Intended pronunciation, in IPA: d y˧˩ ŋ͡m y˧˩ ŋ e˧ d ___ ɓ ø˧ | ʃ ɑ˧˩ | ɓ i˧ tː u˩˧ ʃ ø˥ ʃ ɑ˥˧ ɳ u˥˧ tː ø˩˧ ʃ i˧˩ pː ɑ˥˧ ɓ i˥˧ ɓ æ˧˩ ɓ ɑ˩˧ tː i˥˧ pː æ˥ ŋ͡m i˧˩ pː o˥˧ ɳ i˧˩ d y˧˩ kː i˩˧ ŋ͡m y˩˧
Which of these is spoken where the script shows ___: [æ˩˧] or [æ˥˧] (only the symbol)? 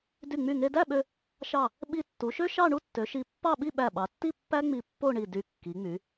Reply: æ˥˧